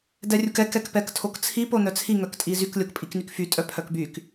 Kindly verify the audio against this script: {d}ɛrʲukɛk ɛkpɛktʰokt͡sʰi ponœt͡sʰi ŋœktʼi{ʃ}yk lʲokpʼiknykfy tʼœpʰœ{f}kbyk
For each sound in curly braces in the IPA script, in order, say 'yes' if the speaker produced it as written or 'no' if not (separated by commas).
yes, no, no